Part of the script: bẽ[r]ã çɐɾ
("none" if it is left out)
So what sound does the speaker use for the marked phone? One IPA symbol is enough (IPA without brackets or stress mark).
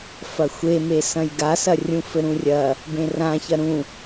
r